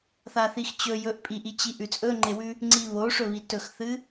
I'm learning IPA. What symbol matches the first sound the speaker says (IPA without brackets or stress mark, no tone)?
θ